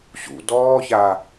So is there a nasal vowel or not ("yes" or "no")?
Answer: no